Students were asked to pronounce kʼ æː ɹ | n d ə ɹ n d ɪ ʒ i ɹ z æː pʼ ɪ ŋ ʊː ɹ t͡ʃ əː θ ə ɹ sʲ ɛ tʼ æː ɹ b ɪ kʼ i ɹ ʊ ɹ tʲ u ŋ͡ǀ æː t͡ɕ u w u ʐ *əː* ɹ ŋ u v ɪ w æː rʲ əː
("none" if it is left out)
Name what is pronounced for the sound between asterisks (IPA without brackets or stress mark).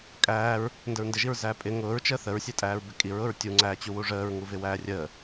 əː